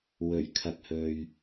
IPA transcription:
w ɵ˨˩ ɥ kʰ ɐ˧ k̚ h ɵ˧ ɥ

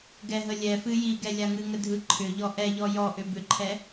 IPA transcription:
ɡ ɛ ɦ ə lʲ ɛ f ɨ j i ɡ ɛ lʲ a ŋ ɨ ŋ ə dʱ ɯ ǃʰ ʏ ʎ ɔ ʔ ɛ ʎ ɔ j ɔ ʔ ʏ b ʏ ǃʰ ɛ

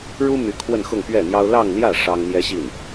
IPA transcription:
ɻ u˥ m y˧˥ kʰ w ə˥˧ n x ʊ˥˧ ŋ p ɥ ɛ˥˩ n̪ j ɑ˥ ʊ̯ l ɑ˥˧ ŋ l j ä˥˩ ʂ ɑ˥ ŋ n̪ j ɛ˥ ɕ i˥˩ n

